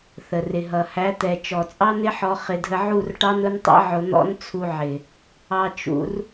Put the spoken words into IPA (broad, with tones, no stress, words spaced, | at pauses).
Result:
θə˨rɪ˨ɦʌ˨ hæ˨˦t̪ɛ˨ t͡ʃɔ˨t͡sʼɑ˦n̪ɪ˦ħɔ˧ χɪ˧dʱə˧ʕu˦˨rʈɑ˦n ʊ˦ntˤḭ˦ ʕʊ˧n̪ɔ̰˦n t͡sʰu˧ʕɪ˨ | ɑ˧t͡ʃṵ˧r